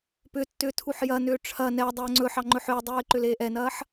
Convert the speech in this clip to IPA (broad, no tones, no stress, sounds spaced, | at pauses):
p ʏ tː ʏː tʰ u ħ j ɐ n ʏː ʈ͡ʂʰ ɐ n ɛ dˤ ɵː ŋ͡ǀ ɵ ħ ɑ ŋ͡ǃ ɵ ħ ʏː dˤ uː ɪ̯ ǃ ʏ l eː ʔ ɛ n ɐː ħ